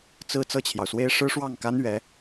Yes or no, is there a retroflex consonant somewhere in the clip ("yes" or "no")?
yes